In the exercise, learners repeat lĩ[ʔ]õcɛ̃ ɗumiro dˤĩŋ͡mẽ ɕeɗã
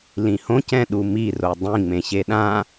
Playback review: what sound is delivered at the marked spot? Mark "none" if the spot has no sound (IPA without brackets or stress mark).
h